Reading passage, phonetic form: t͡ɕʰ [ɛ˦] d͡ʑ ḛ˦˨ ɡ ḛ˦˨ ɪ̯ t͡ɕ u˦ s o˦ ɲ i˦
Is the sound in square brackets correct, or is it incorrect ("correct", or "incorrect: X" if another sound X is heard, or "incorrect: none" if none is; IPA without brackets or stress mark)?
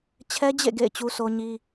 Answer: correct